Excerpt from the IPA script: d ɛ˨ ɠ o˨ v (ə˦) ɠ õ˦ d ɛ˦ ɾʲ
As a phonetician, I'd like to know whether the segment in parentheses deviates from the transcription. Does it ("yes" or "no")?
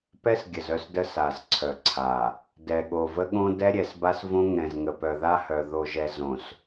no